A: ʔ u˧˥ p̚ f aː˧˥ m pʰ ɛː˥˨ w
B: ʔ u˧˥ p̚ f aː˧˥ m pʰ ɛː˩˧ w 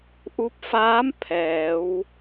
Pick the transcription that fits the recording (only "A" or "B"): B